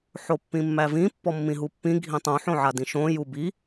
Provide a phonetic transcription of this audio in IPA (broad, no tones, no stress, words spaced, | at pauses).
ħopːĩmːævĩ pːɔmːĩɦupːĩ ɡʱĩtˤũ ħõʕadĩʃõ jubi